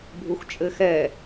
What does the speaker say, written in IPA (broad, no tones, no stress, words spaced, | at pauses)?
bʱuxt͡ʃʼɘxɛ